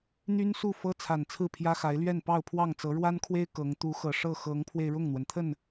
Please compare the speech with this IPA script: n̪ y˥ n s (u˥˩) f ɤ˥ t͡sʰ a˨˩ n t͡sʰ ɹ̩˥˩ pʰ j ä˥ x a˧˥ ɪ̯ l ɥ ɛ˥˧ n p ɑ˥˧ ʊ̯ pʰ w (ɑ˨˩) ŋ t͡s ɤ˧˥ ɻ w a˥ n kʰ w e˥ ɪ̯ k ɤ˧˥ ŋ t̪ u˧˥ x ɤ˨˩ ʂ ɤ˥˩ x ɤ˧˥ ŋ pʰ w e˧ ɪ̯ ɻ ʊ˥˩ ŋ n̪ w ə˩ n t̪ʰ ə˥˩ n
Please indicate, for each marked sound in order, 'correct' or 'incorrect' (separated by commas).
correct, incorrect